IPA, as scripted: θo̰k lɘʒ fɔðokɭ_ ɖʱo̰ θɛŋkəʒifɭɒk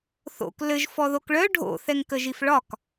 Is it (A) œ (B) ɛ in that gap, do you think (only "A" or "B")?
A